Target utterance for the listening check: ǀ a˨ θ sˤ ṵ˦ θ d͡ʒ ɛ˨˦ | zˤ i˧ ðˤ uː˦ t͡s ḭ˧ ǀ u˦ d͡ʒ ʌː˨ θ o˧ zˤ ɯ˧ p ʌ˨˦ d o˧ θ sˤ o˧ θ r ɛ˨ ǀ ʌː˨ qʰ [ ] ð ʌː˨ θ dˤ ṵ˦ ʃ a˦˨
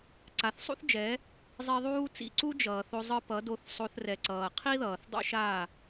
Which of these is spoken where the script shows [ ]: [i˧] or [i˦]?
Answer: i˦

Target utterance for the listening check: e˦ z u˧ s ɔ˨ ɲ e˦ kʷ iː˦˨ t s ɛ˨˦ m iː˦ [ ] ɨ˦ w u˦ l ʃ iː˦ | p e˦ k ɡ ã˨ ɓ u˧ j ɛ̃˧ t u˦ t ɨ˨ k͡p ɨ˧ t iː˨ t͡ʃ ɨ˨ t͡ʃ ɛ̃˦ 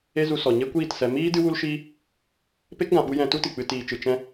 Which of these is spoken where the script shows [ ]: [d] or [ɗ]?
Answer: d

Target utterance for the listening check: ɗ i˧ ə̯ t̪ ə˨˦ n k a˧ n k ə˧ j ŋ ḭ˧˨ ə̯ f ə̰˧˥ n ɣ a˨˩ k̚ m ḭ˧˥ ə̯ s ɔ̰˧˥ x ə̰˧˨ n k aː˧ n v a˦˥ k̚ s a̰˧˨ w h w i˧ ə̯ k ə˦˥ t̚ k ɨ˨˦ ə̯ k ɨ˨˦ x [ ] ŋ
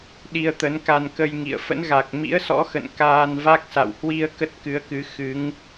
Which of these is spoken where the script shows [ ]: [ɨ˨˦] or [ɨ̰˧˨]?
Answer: ɨ˨˦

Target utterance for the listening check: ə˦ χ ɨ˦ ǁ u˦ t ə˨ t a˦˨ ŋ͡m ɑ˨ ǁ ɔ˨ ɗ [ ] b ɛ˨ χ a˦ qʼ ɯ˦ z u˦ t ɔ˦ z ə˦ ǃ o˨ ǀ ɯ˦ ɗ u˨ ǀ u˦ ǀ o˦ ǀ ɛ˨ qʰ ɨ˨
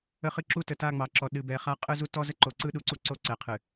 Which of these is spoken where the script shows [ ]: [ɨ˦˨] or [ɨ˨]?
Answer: ɨ˨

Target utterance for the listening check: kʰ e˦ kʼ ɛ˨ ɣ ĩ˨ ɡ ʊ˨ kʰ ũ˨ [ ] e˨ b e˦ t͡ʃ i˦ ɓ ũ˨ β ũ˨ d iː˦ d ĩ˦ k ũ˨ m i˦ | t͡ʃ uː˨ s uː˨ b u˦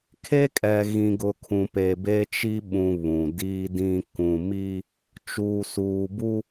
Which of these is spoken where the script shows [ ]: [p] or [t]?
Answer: p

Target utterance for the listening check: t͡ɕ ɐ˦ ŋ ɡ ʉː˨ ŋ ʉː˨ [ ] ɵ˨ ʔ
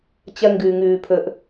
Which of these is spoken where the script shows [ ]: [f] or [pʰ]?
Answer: pʰ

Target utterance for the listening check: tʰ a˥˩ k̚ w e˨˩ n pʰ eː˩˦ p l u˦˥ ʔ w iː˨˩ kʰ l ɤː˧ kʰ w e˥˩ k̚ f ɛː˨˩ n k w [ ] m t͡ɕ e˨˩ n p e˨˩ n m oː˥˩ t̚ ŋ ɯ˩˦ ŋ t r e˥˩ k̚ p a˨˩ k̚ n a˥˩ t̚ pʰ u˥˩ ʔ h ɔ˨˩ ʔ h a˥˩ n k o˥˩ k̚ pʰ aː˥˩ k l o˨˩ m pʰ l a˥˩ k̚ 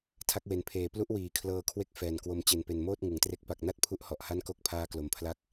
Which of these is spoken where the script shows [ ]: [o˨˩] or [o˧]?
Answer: o˧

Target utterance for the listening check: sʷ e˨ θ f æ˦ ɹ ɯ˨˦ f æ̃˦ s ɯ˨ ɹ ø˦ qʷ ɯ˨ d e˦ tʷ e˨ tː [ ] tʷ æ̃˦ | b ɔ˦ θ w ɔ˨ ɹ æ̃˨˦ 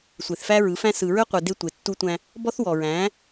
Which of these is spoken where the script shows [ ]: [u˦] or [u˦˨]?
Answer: u˦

